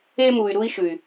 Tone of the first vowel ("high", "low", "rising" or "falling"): high